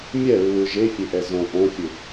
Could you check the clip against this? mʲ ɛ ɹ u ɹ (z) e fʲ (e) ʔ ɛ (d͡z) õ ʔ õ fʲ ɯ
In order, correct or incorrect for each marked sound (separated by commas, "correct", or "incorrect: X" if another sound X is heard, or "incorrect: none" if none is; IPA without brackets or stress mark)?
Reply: incorrect: ʒ, correct, incorrect: z